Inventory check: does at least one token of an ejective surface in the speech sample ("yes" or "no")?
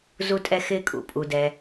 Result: yes